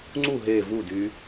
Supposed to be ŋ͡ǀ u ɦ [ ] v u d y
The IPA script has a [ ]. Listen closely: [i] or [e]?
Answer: e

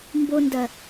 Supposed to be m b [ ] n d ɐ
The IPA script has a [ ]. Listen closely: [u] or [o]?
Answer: o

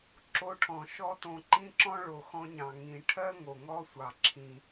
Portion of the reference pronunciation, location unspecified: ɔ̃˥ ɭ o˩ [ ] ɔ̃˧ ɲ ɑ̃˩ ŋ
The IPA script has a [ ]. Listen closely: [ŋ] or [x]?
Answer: x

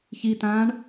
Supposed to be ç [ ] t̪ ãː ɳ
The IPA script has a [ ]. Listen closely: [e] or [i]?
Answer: i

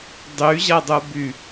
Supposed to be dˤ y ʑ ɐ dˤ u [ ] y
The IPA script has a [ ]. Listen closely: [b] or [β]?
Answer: b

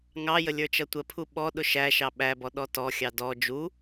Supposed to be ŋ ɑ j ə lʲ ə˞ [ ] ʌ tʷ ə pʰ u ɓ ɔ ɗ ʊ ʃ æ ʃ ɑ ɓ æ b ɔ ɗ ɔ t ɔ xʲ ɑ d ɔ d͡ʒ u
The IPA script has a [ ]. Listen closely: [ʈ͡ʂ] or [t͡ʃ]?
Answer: t͡ʃ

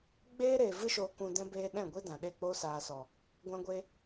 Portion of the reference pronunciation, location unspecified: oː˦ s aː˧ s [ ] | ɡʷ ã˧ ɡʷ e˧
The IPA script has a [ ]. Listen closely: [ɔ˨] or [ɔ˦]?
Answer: ɔ˨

